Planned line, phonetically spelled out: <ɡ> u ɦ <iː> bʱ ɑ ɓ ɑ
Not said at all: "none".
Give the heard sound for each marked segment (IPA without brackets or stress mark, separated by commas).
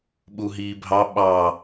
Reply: ɓ, iː